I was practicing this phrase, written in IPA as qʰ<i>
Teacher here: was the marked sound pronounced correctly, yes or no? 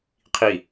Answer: yes